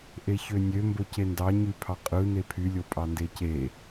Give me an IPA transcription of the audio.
ʔ e ç ø nʲ ø m b o c e n d ɑ ɲ y pʰ ɑ qʼ ɯ n e pʰ y lʲ o pʼ ɑ n d e c e

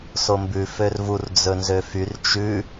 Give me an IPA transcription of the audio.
s o m b ʉ f ø r v u r d͡z ɵ n z ø f y r t͡ʃ ʉ

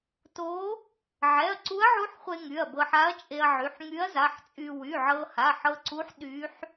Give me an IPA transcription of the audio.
t o˧˥ | ʕ ɛ˩˧˩ ɐ̯ ǀ u˧˥ ɐ̯ ʕ u˧˥ ħ χʷ e˧ ŋ y˩˧˩ ɐ̯ b ɤ˧ ħ a˧˥ ɐ̯ t͡ʃʼ e˧ ɐ̯ ʕ y˩˧˩ ħ ŋ y˧˥ ɐ̯ z a˩˧˩ ħ t͡sʼ y˧ w y˩˧˩ ʕ ɤ˧ h a˩˧˩ ħ ɤ˧ ǀ u˧˥ ħ ɗ y˧˥ ħ

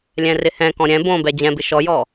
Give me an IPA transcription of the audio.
lʲ ɛ̃ r ɪ h ɛ̃ k ɔ̃ ɾʲ ɛ̃ b õ b ɛ d͡ʑ ɛ̃ b ɪ ʃ ɔ j ɔ

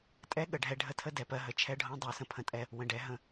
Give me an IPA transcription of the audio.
tʼ ɛ˦ ɠ ə˨ ɖʱ ɛ˧ ɖʱ ə˦ tʰ ə˦ d ɛ˨ p ɜ˧ ɦ ə˨ t͡ʃʰ ɛ˧ ɖʱ õ˧ dˤ o˧ s ə̃˧ pʰ ə̃˧ tʼ ɛ˧ | w ə̃˨ ɖ ɛ˨˦ ɦ ə̃˧

